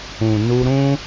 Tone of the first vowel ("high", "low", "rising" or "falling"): low